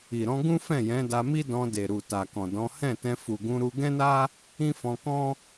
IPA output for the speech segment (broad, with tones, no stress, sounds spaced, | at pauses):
i˨ ɾ ɔ̃˧ ɡ ũ˦ f ɛ̃˦˨ j ɛ̃˨˦ d a˧ m i˦ d ɔ̃˧ d e˨ ɾ u˨ t a˨ k ɔ̃˨ d ɔ̃˨˦ h ɛ̃˦˨ t ɛ̃˧ f u˨ ɡ ũ˧ ɾ u˧ ɡ ɛ̃˦ n a˦ | ĩ˦ f ɔ̃˧ k ɔ̃˦